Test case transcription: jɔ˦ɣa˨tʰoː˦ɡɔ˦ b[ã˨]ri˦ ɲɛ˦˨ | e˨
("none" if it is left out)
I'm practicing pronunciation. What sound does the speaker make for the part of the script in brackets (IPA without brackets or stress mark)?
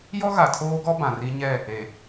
ã˨